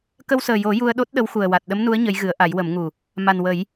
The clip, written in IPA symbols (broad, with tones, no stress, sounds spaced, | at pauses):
k ə˧ w s əː˨˩ j o˨˩˦ j u˧ ə̯ ɗ o˦˥ t̚ ɗ ə˧˥ w x u˨˩ ə̯ w a˨˩ t̚ ɗ ə˧˥ m n u˧˥ ə̯ ɲ ə˧˥ j ɣ ɨ˨˩˦ ə̯ ʔ a˨˩˦ j w ə˨˩˦ m ŋ u˨˩ | m a˨˩ n w ə˨˩˦ j